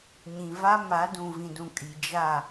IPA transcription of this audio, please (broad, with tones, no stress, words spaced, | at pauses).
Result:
ɲĩ˨va˦ ma˨˦dũ˨vĩ˨dũ˨ kʼi˨d͡ʒa˦˨